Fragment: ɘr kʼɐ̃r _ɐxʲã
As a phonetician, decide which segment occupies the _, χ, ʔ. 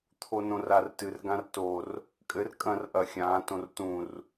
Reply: ʔ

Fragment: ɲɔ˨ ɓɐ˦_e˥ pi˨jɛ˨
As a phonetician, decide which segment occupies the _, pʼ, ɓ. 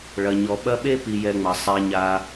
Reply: ɓ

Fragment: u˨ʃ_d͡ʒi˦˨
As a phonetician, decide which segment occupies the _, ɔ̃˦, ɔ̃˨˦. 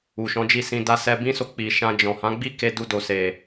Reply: ɔ̃˨˦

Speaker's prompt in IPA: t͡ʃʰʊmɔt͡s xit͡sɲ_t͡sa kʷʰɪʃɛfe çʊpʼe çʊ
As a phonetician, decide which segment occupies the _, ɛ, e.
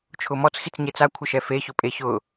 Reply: e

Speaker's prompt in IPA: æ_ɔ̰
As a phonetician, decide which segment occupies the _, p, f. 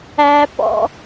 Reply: p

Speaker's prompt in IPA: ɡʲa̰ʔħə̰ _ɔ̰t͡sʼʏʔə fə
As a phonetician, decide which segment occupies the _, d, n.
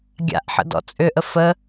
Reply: d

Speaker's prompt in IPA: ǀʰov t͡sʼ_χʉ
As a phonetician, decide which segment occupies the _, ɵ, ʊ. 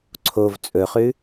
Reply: ɵ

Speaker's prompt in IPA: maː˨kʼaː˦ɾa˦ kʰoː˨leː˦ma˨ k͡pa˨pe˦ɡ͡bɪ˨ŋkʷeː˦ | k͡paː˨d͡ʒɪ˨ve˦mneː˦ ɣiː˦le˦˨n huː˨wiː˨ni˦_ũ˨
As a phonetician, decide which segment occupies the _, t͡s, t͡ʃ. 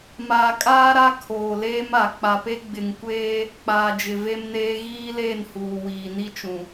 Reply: t͡ʃ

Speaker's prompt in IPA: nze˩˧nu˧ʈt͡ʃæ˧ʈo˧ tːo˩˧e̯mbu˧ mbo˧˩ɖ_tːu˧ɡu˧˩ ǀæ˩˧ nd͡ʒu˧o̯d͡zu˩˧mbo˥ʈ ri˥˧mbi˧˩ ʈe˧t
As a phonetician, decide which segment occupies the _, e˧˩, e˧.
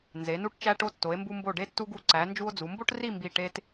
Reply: e˧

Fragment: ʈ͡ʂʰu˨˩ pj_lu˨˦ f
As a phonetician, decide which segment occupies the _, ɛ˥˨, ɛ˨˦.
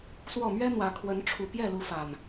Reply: ɛ˥˨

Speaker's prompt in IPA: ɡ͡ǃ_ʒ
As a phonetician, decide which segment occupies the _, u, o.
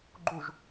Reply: u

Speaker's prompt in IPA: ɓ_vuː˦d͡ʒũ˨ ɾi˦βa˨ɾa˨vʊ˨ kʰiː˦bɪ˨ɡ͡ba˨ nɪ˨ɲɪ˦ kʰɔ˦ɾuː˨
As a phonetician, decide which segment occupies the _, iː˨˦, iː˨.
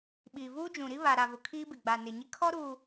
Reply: iː˨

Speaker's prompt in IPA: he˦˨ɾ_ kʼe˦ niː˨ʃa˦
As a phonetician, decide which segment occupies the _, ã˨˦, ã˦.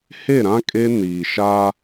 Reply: ã˦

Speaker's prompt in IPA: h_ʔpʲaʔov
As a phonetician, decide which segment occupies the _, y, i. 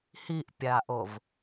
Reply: i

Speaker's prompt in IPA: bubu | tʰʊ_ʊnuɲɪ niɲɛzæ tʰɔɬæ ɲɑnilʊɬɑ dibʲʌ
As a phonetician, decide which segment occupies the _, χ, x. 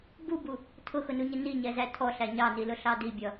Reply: x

